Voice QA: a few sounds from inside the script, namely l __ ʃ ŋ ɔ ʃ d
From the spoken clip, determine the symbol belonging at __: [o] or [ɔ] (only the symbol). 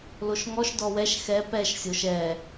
o